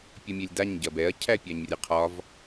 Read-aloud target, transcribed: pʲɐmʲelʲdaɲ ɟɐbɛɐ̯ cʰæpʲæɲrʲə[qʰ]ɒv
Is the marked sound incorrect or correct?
correct